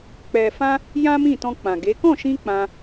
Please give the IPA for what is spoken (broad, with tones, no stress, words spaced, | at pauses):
k͡pɛ˨fã˧ | jã˦ mĩ˦˨tɔ̃˧ k͡pã˨ɡe˨˦ kɔ̃˦˨ʃĩ˧ k͡pã˧